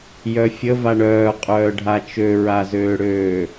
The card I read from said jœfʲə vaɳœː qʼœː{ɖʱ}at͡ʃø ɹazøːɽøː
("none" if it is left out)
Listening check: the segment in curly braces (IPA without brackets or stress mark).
ɖʱ